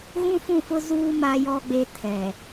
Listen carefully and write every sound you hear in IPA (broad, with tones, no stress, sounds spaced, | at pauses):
ɣ ũ˦ f ũ˦˨ f ʊ˦ z uː˦ m a˦ j ɔ˦ ɡ͡b e˦ tʰ ɛ˨